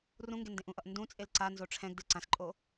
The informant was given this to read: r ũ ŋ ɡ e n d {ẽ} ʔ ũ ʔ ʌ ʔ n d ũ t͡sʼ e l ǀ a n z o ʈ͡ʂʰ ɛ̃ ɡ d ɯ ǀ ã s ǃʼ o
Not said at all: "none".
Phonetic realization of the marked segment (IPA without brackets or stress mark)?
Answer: ẽ